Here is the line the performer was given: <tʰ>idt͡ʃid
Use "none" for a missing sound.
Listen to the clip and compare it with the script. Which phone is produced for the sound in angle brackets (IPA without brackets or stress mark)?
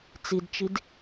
t͡s